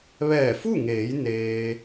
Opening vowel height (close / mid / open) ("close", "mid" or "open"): mid